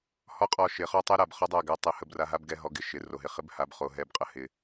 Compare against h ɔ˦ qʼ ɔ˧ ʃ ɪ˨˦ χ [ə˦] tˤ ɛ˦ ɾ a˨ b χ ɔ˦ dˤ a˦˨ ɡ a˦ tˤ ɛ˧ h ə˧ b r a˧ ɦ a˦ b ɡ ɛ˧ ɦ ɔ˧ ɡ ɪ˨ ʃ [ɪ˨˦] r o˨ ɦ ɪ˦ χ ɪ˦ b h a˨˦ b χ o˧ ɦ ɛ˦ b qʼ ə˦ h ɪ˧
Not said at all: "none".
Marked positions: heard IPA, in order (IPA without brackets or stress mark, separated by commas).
ɔ˦, ɪ˨˦